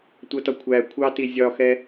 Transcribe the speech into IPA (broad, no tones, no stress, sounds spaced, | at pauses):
tʷ ʌ t ɒ kʷʰ æ kʷʰ ɑ t i zʲ ɒ x ɛ